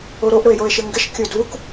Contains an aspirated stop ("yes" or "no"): no